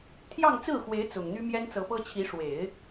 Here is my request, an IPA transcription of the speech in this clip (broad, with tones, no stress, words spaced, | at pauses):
t̪ʰjɑ˥˧ŋt͡sɹ̩˥˩xwe˧˥ɪ̯ t͡sʊ˨˩ŋn̪y˥ mjɛ˥nt͡sɤ˧˥pɤ˥t͡ɕʰi˧˥ ʂwe˨˩˦ɪ̯